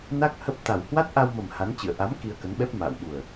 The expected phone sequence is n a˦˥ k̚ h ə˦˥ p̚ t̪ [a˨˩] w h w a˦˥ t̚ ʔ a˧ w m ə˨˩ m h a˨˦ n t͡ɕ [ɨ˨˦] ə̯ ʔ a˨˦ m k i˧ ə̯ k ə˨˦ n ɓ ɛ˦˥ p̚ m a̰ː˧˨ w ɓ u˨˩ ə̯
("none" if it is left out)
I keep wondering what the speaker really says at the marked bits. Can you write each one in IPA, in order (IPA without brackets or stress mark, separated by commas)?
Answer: a˨˩, ɨ̰˧˨